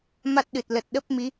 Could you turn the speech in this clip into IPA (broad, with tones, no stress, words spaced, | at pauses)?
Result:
ma˦˥t̚ɗɨ˨˩t̚ lə˨˩t̚ ɗə˦˥p̚mi˨˦